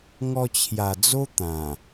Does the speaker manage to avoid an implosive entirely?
yes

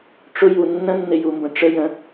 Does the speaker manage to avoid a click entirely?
yes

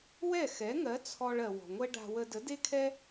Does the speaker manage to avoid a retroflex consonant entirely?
no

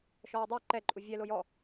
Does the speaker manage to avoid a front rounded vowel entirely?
no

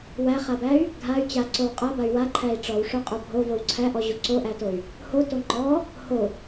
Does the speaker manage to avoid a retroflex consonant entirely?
no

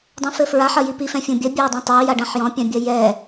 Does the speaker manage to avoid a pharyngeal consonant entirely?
no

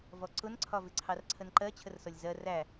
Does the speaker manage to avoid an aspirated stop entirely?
no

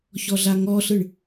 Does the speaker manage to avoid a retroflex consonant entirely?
no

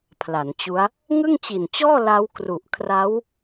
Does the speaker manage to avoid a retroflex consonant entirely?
yes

